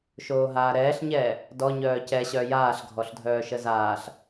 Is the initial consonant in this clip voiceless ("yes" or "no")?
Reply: yes